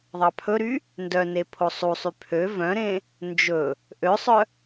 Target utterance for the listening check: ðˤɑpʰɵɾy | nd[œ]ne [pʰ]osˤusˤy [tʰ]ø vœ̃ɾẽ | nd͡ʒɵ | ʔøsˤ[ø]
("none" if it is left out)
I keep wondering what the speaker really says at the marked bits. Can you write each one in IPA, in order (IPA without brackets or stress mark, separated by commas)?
œ, pʰ, pʰ, œ